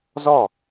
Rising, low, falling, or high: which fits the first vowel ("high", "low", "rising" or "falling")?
falling